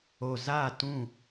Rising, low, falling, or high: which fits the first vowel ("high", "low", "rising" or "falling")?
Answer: low